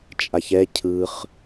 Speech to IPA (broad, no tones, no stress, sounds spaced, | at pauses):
t͡ʃʼ a ç ɛ cʰ ɯ χ